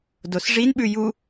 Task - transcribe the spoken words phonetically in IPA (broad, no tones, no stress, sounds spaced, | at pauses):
d o s ʐ i n ɓ ʉ j u